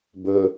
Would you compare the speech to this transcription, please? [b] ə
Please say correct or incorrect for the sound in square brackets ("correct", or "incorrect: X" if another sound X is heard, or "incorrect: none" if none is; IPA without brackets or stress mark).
correct